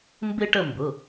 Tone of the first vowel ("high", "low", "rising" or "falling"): high